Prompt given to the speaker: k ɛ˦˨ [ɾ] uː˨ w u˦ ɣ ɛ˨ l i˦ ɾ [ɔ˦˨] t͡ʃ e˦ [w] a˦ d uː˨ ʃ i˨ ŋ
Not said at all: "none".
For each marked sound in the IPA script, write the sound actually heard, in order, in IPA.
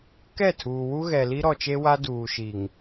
tʰ, ɔ˨, w

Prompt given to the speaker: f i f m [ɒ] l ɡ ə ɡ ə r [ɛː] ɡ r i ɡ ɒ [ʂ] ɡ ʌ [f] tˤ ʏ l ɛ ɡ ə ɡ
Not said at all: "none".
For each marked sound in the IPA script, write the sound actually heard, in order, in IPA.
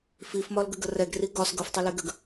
ɒ, ɛ, s, f

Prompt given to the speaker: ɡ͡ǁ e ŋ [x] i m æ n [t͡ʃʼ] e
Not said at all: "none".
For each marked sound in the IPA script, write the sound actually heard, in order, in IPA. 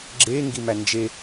ɡ, d͡ʒ

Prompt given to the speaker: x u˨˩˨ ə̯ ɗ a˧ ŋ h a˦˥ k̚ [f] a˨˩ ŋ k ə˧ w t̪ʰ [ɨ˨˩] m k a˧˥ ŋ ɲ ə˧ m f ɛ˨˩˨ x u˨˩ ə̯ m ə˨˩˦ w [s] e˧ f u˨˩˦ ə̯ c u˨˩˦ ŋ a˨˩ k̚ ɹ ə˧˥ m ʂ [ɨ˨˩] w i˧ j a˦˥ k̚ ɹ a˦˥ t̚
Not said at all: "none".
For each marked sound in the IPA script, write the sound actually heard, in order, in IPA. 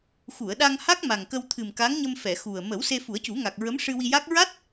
m, ɨ˨˩, s, ɨ˧

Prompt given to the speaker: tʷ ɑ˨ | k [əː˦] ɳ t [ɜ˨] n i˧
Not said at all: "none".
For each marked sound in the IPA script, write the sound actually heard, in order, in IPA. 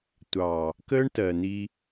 əː˦, ɜ˨

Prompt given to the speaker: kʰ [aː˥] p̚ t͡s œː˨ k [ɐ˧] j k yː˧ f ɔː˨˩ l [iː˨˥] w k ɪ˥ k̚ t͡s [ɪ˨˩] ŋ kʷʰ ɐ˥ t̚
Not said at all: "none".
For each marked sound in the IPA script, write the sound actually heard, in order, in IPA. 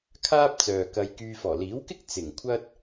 aː˥, ɐ˧, iː˨˥, ɪ˨˩

